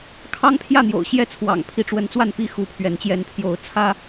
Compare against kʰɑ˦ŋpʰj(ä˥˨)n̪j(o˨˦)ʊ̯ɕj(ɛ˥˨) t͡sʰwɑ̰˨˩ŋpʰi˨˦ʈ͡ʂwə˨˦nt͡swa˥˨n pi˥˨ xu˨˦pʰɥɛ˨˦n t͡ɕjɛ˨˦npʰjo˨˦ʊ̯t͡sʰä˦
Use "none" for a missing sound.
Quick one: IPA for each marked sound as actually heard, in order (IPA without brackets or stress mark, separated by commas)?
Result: ä˥˨, o̰˨˩, ɛ˥˨